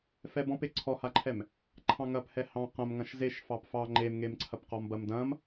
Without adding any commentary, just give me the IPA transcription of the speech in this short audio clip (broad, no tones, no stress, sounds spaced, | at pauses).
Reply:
f ɛ b ɔ̃ p e ǀʰ ɔ h a ǃʰ ɛ m | ǃʰ ɑ̃ ŋ ɐ p h ɛ h ɑ̃ q ɐ̃ m ŋ ɐ̃ ʃ z e ʃ f ɑ p f ɑ ŋ͡ǃ e m ŋ e m ǀʰ ɐ p q ɔ m b ɐ m d ɐ̃ m